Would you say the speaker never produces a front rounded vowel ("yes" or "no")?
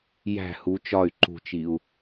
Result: no